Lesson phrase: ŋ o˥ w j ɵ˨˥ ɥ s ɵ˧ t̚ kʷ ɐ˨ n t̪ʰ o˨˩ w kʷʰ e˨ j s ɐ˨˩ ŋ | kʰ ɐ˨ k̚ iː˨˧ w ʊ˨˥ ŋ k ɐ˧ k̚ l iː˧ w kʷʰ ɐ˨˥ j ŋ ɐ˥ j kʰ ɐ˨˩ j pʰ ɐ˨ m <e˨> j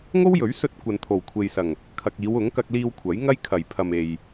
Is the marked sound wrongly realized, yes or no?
no